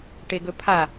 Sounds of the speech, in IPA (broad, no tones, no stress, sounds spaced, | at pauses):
ʈ e ɡ ɵ pʰ a